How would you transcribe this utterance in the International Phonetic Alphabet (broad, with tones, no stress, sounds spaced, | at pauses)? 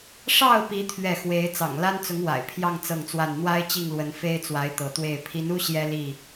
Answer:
ʂ ɑ˥˨ ʊ̯ p i˨˦ t̪ʰ ɥ ɛ˥˨ x w e˨˦ ɪ̯ t͡s ɑ̰˨˩ ŋ l a˦ n t͡s ʊ˨˦ ŋ w a̰˨˩ ɪ̯ pʰ j ɑ˥˨ ŋ t͡s ɤ˥˨ ŋ t͡s w a˥˨ n n̪ w a˦ ɪ̯ t͡ɕ i˥˨ ŋ l w ə˨˦ n f e˦ ɪ̯ t͡s w a˨˦ ɪ̯ t̪ ɤ˨˦ t̪ w e˥˨ ɪ̯ pʰ i˨˦ n u˦ ɕ j ɛ˦ l i˥˨